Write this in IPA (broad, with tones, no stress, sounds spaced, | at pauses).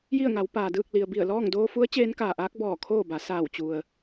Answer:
j i˥˨ ə̯ ŋ a˩˧ w p aː˩ d ɯː˥˨ k̚ l i˩ ə̯ b i˧˩ ə̯ l ɔː˥˨ ŋ d oː˧ f u˧˥ ə̯ t͡ɕ eː˧˥ n k aː˩ ʔ aː˧˥ k̚ b ɔː˧˩ kʰ oː˥˨ b a˩˧ s aː˧˩ w t͡ɕ u˩ ə̯